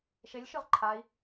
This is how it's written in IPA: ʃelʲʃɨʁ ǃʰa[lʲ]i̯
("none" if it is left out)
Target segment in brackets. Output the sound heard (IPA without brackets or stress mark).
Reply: none